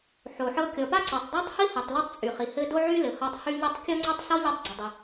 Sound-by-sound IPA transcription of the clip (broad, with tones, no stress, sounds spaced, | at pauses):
ħ o˩ ħ ɤ˧ kʲ ɔ˩ p a˥ ǀ o˩ tˤ dˤ a˥ tˤ h i˥ h i˩ tˤ l o˥ tˤ t͡sʼ y˩ χ i˩ h ɘ˥ d o˥ ʕ y˥ l ɘ˩ h ɔ˧ tˤ h y˥ ʎ i˥ tˤ kʲ ɔ˥ ŋ͡ǀ ɘ˥ tˤ s ɔ˥ ʎ i˧ tˤ ɡ͡ǀ ɪ˩ dˤ ɪ˩